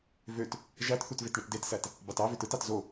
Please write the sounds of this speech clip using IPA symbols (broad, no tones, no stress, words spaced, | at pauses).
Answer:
vøt | ʒætθut vetɳɯtdetsæt | bɑtɑvøt ɯtɑt zo